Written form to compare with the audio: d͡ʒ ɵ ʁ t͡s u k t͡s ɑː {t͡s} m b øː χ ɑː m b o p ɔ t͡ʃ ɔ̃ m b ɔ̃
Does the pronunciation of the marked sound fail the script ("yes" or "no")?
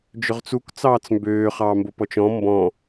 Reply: no